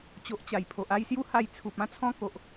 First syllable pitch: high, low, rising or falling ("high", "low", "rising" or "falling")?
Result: low